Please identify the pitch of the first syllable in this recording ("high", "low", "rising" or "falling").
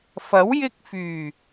rising